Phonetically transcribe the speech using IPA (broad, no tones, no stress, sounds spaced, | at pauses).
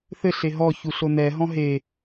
θ ɘ ɬ e ɦ ɔ ç u ɬ o n ɛ ɦ ɔ̃ ɦ e